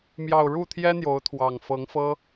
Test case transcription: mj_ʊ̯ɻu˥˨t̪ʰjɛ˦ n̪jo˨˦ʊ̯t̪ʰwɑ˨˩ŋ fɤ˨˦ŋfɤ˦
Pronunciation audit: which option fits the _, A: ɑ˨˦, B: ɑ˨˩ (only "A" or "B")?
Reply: B